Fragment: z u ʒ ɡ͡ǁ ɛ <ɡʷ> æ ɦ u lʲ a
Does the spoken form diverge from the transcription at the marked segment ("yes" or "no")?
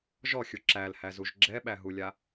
yes